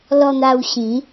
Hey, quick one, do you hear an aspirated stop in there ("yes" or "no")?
no